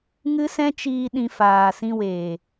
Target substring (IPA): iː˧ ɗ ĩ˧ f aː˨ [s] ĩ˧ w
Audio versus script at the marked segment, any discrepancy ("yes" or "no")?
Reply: no